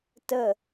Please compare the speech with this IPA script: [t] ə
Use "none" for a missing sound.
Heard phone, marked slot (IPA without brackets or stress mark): t